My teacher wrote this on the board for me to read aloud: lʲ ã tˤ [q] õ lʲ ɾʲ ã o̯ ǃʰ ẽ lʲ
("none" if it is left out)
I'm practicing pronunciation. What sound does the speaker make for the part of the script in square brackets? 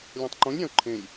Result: ǃ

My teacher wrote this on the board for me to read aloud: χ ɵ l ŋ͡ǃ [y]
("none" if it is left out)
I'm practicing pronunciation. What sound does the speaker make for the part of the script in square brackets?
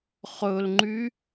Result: y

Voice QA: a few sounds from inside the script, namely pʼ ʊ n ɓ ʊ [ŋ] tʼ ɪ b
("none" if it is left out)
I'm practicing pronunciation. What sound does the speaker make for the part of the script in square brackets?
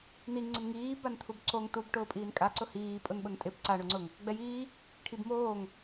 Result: n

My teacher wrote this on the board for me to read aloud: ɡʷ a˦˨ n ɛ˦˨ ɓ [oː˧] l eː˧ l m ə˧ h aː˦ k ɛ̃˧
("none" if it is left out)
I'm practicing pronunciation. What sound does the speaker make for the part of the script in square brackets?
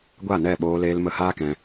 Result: oː˧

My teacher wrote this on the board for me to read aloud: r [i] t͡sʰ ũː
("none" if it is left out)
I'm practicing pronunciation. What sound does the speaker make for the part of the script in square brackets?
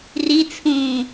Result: i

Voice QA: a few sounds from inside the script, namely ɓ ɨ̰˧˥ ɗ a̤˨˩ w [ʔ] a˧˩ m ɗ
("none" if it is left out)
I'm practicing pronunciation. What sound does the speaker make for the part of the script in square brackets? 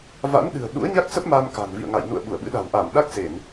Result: ʔ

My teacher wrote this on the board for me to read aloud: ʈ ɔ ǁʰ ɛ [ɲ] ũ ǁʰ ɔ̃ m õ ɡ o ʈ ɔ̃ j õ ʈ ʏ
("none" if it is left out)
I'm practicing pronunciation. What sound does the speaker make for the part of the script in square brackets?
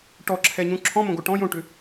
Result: ɲ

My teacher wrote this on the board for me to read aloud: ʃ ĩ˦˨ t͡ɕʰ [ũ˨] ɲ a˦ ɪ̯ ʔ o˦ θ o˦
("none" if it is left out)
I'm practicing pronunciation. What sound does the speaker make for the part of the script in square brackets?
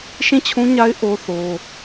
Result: ũ˦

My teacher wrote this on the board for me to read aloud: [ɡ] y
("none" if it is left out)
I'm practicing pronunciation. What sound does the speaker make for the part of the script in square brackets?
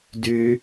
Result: d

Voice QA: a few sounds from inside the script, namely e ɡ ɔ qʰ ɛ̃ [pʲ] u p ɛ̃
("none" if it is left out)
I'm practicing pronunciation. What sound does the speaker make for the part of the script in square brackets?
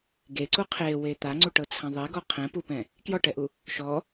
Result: p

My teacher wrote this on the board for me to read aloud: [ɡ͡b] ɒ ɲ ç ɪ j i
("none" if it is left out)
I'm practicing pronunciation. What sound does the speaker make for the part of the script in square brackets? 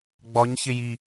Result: ɡ͡b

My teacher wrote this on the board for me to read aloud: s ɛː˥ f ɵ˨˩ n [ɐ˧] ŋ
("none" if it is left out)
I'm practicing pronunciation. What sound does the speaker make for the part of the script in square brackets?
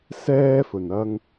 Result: ɐ˧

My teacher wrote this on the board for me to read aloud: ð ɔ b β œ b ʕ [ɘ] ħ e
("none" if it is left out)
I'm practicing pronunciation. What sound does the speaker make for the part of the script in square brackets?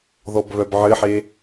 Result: ɘ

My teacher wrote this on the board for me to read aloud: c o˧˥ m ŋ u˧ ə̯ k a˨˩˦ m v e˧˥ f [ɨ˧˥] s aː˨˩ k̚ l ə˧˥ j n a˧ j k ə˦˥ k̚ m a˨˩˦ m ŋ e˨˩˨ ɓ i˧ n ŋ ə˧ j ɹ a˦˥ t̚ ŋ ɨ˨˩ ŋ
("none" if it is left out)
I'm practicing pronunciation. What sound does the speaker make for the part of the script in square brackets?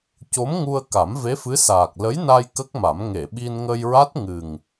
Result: ɨ˧˥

